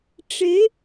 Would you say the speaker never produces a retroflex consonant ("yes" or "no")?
no